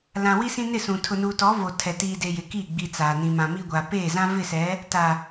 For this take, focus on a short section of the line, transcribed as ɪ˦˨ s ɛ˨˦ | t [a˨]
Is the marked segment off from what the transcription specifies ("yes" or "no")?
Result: no